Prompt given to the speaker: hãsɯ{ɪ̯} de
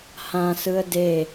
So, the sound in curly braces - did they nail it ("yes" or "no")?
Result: no